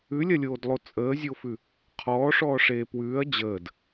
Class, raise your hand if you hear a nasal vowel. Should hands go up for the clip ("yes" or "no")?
no